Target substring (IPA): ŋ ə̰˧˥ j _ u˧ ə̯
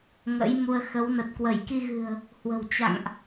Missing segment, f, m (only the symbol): m